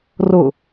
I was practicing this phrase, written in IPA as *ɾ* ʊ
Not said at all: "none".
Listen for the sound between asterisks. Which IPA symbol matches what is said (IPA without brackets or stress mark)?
r